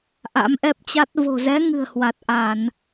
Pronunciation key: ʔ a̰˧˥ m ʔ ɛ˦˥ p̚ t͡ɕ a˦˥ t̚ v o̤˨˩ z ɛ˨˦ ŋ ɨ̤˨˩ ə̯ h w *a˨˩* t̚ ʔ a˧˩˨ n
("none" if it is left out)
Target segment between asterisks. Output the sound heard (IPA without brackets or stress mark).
a˨˩